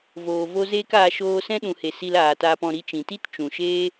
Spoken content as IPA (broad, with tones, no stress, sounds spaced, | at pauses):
v oː˨ v o˦ z eː˦ k aː˧ ʃ oː˧ s ɛ̃˦ ɗ ũ˨ h e˨ s i˧ l aː˨ t aː˧ p ɔ̃˧ ɾ i˧ t͡ʃ ĩ˨ t i˦ t t͡ʃ ũ˨ ʃ eː˦